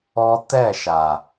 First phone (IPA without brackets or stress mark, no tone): ɔ